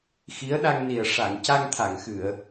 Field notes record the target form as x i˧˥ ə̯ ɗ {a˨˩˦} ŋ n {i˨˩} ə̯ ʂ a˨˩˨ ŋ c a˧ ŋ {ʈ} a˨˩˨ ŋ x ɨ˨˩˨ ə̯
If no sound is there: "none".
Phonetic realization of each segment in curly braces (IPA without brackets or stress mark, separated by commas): a˧, i˨˩, t̪ʰ